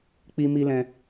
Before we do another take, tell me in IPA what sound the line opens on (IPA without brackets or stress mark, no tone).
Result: k͡p